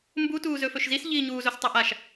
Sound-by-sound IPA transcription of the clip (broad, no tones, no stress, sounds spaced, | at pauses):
m b u t uː z ɵ f ɵ ʃ z i s ʎ iː ɲ uː z o s tˤ ɛ ʔ a ʃ